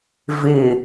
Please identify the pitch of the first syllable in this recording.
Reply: low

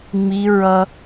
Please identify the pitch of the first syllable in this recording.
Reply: high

